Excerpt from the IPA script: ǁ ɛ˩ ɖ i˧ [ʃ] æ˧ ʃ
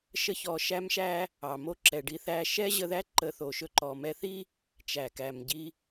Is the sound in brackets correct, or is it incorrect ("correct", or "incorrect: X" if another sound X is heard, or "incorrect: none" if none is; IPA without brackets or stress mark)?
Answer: incorrect: θ